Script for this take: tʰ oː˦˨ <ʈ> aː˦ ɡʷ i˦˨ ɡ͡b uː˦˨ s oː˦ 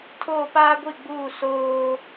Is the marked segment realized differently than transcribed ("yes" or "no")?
yes